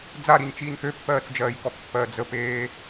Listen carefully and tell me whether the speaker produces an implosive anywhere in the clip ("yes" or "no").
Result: no